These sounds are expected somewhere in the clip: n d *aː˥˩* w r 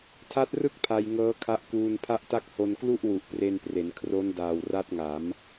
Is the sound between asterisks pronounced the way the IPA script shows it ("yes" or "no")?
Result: no